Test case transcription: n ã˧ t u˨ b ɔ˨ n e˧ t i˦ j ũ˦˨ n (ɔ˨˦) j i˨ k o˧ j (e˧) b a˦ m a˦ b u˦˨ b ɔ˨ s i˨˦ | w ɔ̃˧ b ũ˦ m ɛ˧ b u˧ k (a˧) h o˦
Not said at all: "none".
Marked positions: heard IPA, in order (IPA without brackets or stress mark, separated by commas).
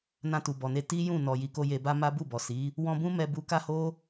ɔ˨, e˧, a˦